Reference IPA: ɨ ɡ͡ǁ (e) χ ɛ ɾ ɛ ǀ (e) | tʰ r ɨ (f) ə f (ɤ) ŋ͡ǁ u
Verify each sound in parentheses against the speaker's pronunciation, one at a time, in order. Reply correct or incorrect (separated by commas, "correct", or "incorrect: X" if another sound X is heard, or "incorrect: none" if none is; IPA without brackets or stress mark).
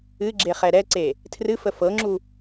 correct, correct, correct, correct